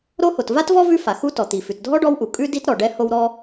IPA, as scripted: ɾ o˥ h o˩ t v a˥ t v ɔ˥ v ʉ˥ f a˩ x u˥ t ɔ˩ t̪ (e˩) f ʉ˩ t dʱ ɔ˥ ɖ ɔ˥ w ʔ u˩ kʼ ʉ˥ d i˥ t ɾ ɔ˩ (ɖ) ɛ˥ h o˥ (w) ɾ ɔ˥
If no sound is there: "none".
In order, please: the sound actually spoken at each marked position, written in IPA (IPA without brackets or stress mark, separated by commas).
i˩, ɖ, w